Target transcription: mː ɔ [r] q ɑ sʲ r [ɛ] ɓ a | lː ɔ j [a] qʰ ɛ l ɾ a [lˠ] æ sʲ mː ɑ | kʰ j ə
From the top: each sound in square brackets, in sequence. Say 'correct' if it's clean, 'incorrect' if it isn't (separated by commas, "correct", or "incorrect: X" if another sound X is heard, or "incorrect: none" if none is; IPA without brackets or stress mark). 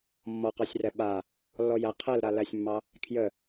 incorrect: none, correct, incorrect: æ, incorrect: l